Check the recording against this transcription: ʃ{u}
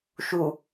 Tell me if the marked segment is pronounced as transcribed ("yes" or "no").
yes